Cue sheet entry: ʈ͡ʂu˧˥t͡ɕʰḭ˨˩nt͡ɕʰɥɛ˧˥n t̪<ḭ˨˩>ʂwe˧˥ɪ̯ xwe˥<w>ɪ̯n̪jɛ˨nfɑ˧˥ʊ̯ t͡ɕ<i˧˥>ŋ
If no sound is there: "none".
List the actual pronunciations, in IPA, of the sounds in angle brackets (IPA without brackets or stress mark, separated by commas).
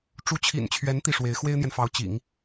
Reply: i˥˩, none, ḭ˨˩˦